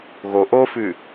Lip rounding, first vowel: rounded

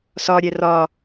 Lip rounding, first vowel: rounded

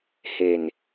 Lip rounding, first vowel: unrounded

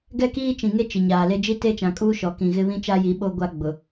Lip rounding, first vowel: unrounded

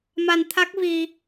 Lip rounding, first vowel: unrounded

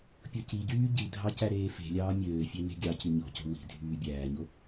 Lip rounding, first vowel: rounded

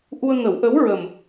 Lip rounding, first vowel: rounded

